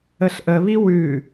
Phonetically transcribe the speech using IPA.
əɬʔəβi wʉ

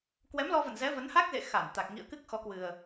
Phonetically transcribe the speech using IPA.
kwɛ˨˦mlɔ˧və̰˧˨n zɛ˨˦və˨˦nha˦˥k̚zḛ˧˨ xa˧˩nt̪a˨˩k̚ ŋḭ˧˨ə̯kɨ˦˥k̚ xɔ˨˦kwɨ˨˩ə̯

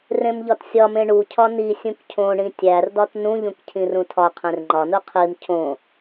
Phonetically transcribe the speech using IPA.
rẽmʎɒtsʲɒmẽ ɳucʰɒ ni sʲũkcʰõɳĩ tʲærdɒt nũʎũk cʰĩrũtʰɒqʰẽr ŋ͡ǃɒnu qʰim cʰõ

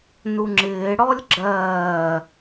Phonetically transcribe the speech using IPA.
nuŋ͡ǁɪː ɽɔlʲɡ͡ǁɜː

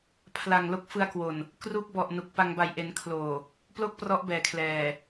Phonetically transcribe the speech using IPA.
pʰla˨˩ŋ lo˦˥k̚ fɯ˧a̯kwo˨˩n | kru˦˥k̚bɔ˨˩ʔ nu˨˩k̚pa˧ŋ ba˨˩jʔe˩˦n kʰloː˨˩ | plo˥˩k̚prɔ˦˥ʔ bɛː˨˩kʰlɛː˨˩

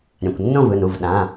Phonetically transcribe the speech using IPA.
ɾʲã˩˧˩kʷnːõ˥˨vɯ˩˧˩nu˩˧˩v ɗã˩˧˩

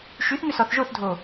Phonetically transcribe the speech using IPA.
ʃyθŋʏ sɔθʒoθdʱo

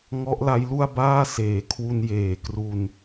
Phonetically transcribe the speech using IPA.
ŋɔ˦˥ʔla˦˥jlu˥˩a̯baː˥˩ seː˨˩kʰwu˧n jeː˨˩kru˧n

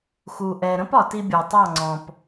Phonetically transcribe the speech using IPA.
xu˧ʔɛ˧ ɾə̃˦pɒ˨ti˧ bʲɔ˨tˤɑ˦˨ŋ͡ǀɔ̃˨p

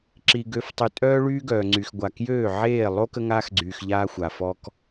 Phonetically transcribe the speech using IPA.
ǁi˨ ɡø˨˦ftˤy˨tʼœː˦ ɭyː˦ɡœː˨ŋ͡ǀy˨xɡʷa˨ kjøː˦˨ʕeː˦˨ lˠo˦ kə˦ŋaː˦xɡ͡ǀyː˨x ʎaː˦xʷa˨fɔ˦k

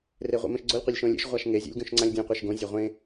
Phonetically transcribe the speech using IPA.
reʁʷḛmẽʃɡ͡ǀolʲ qʷelʲʃõlʲḛʃ ʁʷaʃŋe zʲo̰lʲɡõʃŋ͡ǀãlʲdʲõ qʷeʃɡõ zʲaʁʷẽ

